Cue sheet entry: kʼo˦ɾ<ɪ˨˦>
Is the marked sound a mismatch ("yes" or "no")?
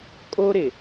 yes